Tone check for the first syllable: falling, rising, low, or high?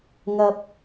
low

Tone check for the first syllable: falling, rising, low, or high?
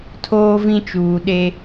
high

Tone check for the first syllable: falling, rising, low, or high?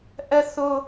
high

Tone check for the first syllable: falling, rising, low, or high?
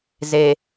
low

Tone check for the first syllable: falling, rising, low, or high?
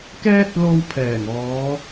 high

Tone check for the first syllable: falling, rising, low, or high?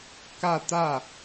falling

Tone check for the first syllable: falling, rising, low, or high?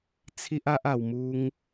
high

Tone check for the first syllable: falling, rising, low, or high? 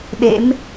rising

